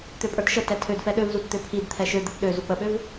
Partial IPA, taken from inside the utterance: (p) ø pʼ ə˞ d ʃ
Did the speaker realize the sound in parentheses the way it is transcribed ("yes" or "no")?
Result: no